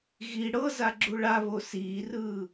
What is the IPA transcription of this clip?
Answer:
ɣ i ɽ ɤ z a ɡ͡ǁ u ɭ a β o s iː r ɯː

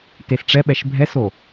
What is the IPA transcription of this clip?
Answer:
t e s ʈ͡ʂ ɛ ɓ ɛ ʃ bʱ ɛ s o

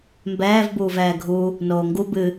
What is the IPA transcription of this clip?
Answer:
m b ɛː v b uː v ɛː ɡʱ u | n oː ŋ ɡ u b ɨ

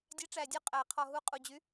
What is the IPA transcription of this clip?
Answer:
dʲ æ˨˥ ʈ͡ʂ æ˨˩ dʲ ɔ˨˥ qʼ æ˨˩ qʰ ɔ˨˩ ɦ u˨˥ qʼ u˨˩ d͡ʑ y˨˥

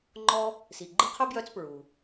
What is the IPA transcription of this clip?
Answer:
ŋ͡ǃ ɔ˦ | s i˩ ɡ͡ǃ ɨ˦ qʰ œ˥ b j œ˦ t͡s p ɹ u˩

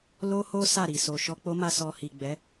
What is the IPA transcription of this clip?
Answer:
l o˦ h o˦ s a˦˨ ɾ i˨ s o˨ ʃ ɔ˧ k͡p o˦ m a˧ s ɔ˧ h i˨ ɡ͡b ɛ˨˦

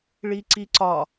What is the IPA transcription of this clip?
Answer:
ɭ i ǀ i ǀ ɒ

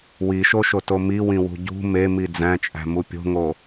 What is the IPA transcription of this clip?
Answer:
w i ʃ o ʃ o t o m i w ĩ w ṳ ɟ ṳ m e m i d͡z æ̃ t͡ʃʼ æ̤ m u pʲ o̤ ŋ o

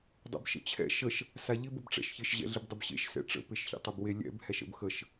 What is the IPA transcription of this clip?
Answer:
dˤ ɛ̰ b ʃ ə̰ t͡ɕʰ ɛ̰ ʃ ə ʃ | s a ʎ ɪ b ə b ʈ͡ʂ ɛ̰ ʃ ç ɪ ʃ ʑ ɛ̰ ɮ ɪ b dˤ ɪ b ɕ ḛ ʃ s ɛ̰ ʈ͡ʂ ə̰ p e ʃ ç ḛ tˤ ɪ b w e lʲ ɛ̰ b h ɛ ʃ ə̰ b x ə ʃ

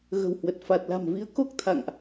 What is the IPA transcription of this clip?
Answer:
ɣ ə̤˨˩ w h w ə˨˩ t̚ f a˨˩ t̚ l a̤˨˩ m v i˨˦ ə̯ k o˦˥ k̚ t̪ʰ a̰˧˨ ŋ ʔ

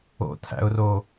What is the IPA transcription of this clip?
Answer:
o̰ tʰ æ̰ ʊ̯ r o

